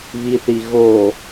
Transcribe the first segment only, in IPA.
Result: β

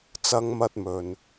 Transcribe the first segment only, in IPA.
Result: t͡s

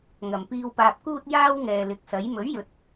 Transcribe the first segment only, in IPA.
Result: ŋ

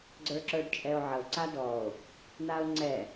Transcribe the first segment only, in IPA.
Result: ɡ͡ǀ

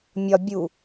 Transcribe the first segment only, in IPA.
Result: mʲ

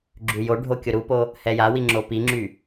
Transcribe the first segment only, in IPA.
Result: ɡ͡ǁ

